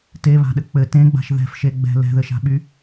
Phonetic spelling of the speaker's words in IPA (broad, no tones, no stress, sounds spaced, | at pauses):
t e β a̤ ɗ ɘ k͡p ɘ t ẽ ɡ͡b a̤ ʃ ð ɛ̤ f ʃ e ɡ͡b ɛ̤ l ɛ̤ ð ɘ ʃ a̤ ɓ y